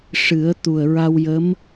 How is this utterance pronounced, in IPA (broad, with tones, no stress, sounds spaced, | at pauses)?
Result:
ʂ ɨ˨˩˦ ə̯ t̪ u˨˩ ə̯ ɹ a˧ w j ə˧˥ m